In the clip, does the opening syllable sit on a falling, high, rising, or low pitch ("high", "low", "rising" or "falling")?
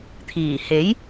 low